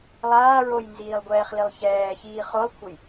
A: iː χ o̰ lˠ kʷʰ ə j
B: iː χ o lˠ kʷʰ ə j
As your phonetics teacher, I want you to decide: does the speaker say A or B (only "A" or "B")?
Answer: B